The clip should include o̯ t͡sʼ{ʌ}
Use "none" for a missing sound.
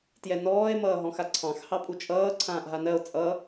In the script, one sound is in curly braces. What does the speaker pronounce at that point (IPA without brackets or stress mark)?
ʌ